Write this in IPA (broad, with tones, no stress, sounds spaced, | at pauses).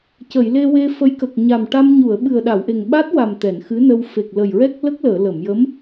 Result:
c ə˨˩˨ j l e˧ w e˧ f ə˧˥ j k ə˨˩ k̚ ɲ a˨˩ m ʈ a˧ m ɲ u˨˩˨ ə̯ ɓ ɨ˨˩ ə̯ ɗ a˨˩˨ w ʔ e˨˩ ŋ ɓ a˦˥ t̚ w a˨˩ m t̪ ɛ˨˩˨ n x ɨ˧˥ n ə˧ w f e˨˩ k̚ l ə˨˩ j ɹ ɛ˦˥ k̚ l ə˦˥ k̚ l əː˨˩˨ l ə˨˩˨ m j ə˧˥ m